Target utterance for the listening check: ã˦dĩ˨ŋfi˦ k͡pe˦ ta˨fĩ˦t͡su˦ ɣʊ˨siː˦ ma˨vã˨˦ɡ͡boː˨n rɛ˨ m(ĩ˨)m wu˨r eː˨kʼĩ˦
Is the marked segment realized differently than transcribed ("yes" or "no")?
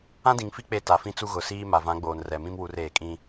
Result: yes